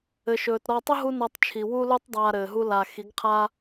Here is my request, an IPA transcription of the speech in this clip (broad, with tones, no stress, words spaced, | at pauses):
ɘ˨ʃɵː˨tɾɔ˧ tˤɵ˦ ɦu˦nɔ˧tˤt͡ʃʰi˨ wu˦lu˦tˤdˤaː˧ ɾɘː˨ɦu˦ la˧ xi˨˦ɡqʰaː˦